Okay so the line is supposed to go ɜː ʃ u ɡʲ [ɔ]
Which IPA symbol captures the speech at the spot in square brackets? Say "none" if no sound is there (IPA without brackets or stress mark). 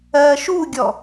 ɔ